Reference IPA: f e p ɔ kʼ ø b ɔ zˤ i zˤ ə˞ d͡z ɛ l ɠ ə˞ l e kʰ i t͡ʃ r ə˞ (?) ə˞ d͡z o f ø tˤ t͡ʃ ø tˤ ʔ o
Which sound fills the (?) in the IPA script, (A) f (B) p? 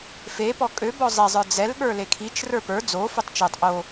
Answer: B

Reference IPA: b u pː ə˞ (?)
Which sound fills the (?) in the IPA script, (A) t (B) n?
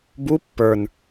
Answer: B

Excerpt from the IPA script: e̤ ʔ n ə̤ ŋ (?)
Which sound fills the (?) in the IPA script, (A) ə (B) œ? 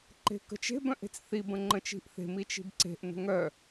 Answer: B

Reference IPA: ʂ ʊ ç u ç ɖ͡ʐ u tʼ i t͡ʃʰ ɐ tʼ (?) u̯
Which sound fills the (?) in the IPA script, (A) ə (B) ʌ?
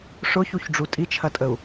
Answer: A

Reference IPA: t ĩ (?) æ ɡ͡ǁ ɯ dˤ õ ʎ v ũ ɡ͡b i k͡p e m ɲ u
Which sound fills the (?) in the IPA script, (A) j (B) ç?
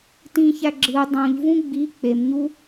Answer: B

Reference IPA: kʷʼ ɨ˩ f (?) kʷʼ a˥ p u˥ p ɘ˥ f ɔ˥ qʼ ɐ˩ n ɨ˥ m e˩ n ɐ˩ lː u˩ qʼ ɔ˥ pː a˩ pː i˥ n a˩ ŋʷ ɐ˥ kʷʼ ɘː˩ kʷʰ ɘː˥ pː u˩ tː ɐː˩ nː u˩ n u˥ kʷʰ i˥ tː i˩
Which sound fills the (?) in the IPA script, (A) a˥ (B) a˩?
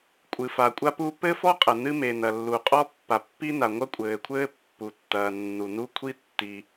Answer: B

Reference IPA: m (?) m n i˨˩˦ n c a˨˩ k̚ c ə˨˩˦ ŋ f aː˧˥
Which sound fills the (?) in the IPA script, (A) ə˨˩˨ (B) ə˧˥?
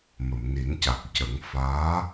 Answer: A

